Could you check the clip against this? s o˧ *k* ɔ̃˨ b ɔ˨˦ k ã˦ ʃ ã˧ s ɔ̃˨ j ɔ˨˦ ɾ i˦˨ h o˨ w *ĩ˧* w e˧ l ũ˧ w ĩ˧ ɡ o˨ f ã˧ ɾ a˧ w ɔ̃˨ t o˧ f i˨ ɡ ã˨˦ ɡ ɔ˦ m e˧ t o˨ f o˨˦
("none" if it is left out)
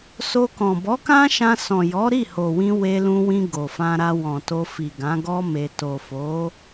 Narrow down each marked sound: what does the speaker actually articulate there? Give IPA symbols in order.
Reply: k, ĩ˧

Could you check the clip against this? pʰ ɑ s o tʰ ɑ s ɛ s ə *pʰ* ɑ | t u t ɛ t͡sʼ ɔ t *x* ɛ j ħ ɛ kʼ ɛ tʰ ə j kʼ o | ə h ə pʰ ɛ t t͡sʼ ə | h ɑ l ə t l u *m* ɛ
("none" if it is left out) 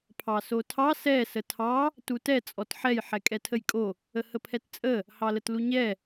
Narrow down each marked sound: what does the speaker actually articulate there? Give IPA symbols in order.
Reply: tʰ, ħ, ɲ

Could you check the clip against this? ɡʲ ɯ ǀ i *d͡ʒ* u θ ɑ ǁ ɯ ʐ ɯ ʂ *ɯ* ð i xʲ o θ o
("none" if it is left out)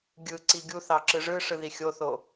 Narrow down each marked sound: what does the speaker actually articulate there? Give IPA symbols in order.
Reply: ɡʲ, ɯ

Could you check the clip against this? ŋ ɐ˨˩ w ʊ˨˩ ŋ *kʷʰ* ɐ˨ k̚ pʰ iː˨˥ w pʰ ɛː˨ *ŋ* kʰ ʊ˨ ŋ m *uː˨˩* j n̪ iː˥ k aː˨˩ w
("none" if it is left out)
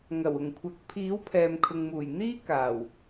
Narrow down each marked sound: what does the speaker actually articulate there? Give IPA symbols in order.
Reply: kʷʰ, m, uː˨˩

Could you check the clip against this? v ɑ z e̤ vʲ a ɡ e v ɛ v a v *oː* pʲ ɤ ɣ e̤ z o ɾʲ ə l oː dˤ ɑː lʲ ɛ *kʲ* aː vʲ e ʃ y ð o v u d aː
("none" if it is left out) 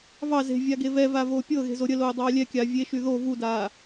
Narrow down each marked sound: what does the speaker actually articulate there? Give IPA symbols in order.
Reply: oː, kʲ

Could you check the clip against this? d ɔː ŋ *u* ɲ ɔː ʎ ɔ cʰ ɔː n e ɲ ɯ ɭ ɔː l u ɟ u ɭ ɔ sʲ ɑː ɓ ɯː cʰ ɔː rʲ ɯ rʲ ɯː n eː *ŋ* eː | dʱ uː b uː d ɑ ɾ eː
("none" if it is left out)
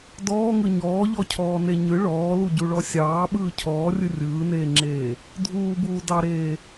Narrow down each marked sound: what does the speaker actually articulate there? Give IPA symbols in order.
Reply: ɯ, ŋ͡ǁ

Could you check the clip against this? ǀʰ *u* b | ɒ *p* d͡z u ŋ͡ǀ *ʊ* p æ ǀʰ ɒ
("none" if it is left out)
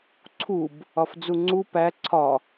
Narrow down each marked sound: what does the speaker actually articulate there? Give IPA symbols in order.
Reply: u, f, u

